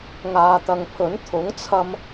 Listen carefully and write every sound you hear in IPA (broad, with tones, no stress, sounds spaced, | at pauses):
ŋ aː˨ t̪ ɐ˨ ŋ pʰ ɵ˨˥ n t̪ʰ ʊ˨˥ ŋ t͡sʰ ɐ˧ m